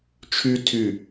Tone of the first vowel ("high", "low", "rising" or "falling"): high